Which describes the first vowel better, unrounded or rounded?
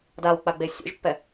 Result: unrounded